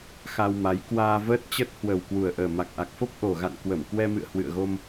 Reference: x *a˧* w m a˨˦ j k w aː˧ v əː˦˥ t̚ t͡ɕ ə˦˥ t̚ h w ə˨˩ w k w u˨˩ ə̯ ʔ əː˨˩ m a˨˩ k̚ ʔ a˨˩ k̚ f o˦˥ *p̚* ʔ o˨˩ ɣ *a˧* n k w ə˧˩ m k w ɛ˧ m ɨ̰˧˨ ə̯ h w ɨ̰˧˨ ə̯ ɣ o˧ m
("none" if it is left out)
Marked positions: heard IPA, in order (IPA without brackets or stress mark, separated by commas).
a˧, p̚, a̰˧˨